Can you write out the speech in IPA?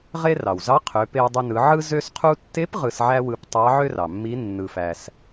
ʁe˧ rɑ˩wzɑ˧˥ qʰø˩˧pe˧wdˤe˧nɯ˩˧ ʕɯ˧zø˧sqʰu˧tːe˧˥p ʁɯ˧sʕæ˥wɯ˧p tˤɑ˧˥ʕø˥rɑ˩mːi˧˥ nːɯ˧fæ˧s

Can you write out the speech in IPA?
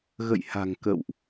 ɣə̰˧˨jha̤˨˩ŋ kə̰˧˨wʔ

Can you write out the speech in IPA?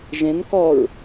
ʒẽn kɔɹ

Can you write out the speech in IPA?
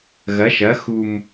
ɣɐ˩˥ʃɐ˩˥ xu˨˩m

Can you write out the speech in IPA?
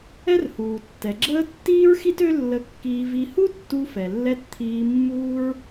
ɛ˥rhuː˩tːɛ˩ɡ͡ǁəː˥ tːiː˥ɹxi˥t ø˥lːə˧kːiː˧ vi˧ hu˥tːu˧fɛ˩lːɛ˧t t̪ʰiː˧mːuː˥ɹ

